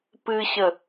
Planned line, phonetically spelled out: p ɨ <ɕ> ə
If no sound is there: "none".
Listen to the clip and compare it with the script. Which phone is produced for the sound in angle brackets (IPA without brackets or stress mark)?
ɕ